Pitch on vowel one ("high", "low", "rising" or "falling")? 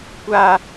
high